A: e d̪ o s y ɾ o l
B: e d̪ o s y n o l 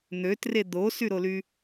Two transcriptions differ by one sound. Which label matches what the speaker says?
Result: A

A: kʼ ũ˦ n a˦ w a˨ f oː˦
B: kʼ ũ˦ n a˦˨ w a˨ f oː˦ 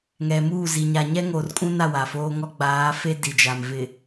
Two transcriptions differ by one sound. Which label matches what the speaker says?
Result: B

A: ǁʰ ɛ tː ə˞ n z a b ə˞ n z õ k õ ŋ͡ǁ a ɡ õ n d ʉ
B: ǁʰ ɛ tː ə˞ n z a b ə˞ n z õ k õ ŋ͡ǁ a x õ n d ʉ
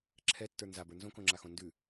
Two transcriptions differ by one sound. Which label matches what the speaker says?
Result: B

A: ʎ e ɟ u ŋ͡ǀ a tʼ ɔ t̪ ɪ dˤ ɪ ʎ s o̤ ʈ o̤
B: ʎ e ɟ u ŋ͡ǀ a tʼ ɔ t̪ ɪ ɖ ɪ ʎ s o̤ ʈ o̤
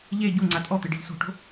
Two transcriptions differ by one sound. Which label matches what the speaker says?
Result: B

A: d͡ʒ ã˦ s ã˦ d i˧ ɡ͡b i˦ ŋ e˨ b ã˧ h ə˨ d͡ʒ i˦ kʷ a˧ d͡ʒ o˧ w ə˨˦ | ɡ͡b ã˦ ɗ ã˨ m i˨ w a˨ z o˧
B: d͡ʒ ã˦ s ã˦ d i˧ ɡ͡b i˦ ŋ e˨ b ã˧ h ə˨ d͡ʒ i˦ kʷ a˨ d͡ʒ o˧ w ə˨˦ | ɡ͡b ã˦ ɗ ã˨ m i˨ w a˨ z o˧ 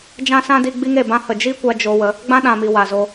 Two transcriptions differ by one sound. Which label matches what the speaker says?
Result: A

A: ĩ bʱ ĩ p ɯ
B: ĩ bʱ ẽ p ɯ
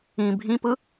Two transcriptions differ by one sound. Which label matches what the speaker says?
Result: A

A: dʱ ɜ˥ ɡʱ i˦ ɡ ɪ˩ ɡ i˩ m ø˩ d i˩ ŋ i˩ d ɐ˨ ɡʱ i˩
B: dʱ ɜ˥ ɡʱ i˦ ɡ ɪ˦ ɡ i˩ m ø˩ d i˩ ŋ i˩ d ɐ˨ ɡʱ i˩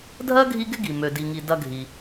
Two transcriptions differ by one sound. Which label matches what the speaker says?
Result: B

